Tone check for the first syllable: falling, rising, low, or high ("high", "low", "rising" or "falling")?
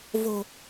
low